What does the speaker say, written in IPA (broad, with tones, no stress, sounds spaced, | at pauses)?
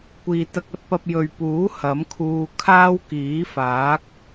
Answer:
kʷ iː˨ t̪ ɐ˧ k̚ ɐ˨˥ t̚ p ɐ˧ p̚ j ɵ˨ ɥ p uː˨˥ h ɐ˨˥ m kʰ uː˧ kʰ aː˥ w k iː˨˥ f aː˨˥ k̚